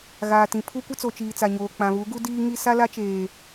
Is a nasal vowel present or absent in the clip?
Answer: present